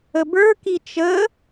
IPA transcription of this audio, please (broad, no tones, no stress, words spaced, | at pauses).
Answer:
əbə˞ kit͡ʃə